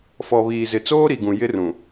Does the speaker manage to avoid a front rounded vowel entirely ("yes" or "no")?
yes